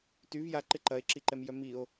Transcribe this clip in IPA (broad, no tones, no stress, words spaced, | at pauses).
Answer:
tyv jaǃɪ ǃɐe̯ǁiǃɛmjœ mio̯